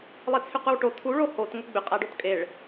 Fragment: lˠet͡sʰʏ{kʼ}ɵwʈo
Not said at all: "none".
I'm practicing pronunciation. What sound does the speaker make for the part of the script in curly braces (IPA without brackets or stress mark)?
q